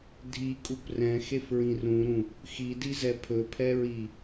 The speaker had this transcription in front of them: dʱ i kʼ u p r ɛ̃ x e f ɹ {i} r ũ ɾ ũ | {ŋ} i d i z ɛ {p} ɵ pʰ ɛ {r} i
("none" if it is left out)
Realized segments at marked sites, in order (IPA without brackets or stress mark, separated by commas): ĩ, x, pʰ, ɹ